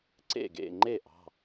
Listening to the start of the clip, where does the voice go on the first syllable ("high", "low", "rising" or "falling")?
falling